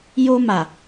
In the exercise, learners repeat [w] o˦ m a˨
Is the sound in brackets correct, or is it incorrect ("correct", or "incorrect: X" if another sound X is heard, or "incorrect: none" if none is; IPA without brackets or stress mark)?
incorrect: j